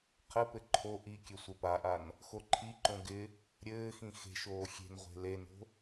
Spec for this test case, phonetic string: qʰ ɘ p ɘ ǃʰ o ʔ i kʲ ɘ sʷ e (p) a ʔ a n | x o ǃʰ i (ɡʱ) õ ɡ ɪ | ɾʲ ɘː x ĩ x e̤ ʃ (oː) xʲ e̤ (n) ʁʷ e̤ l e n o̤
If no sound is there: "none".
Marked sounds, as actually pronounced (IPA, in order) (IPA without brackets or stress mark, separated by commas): p, ǃ, oː, n